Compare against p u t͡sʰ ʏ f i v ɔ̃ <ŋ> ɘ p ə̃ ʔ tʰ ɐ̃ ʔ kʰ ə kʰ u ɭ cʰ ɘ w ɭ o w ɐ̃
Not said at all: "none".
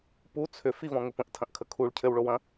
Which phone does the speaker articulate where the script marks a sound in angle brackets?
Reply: ŋ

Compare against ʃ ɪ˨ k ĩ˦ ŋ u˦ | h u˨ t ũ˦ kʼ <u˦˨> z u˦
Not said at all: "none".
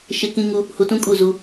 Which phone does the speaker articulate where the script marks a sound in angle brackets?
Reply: u˦˨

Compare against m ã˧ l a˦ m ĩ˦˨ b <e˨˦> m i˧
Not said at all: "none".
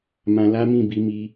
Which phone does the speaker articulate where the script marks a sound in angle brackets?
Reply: i˨˦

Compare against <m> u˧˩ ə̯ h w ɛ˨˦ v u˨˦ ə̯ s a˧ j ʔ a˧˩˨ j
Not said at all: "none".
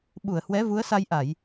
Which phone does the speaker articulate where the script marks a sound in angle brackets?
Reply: ɓ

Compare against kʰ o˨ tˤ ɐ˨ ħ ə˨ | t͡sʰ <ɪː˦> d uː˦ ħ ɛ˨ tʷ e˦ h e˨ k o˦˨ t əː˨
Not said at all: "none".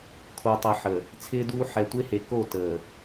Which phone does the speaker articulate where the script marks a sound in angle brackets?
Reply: ɪː˦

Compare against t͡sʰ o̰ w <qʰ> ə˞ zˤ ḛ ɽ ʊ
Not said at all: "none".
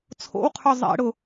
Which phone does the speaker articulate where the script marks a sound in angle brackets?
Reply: qʰ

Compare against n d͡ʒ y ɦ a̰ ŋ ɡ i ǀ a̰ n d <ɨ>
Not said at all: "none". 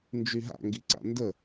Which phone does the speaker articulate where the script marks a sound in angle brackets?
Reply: ə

